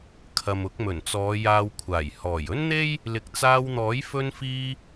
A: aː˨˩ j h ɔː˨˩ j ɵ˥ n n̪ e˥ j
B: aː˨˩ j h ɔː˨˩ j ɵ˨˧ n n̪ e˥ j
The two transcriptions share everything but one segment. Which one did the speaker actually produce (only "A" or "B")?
A